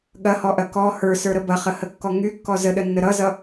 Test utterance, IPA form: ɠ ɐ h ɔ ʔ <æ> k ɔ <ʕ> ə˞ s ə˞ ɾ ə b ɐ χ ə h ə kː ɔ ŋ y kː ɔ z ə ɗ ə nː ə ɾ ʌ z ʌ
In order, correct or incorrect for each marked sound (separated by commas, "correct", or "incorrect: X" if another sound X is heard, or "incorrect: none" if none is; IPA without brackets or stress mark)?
incorrect: ɐ, incorrect: h